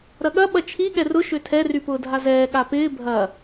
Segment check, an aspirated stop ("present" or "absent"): present